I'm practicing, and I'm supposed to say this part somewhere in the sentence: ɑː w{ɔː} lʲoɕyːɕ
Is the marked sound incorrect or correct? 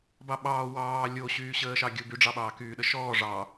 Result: incorrect